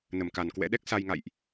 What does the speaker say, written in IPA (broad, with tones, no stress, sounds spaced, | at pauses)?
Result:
n ə˧˩ m k a˨˩ n k w ɛ̰˧˥ ɗ ɛ˦˥ k̚ s a˧ j ŋ a̰˧˨ j ʔ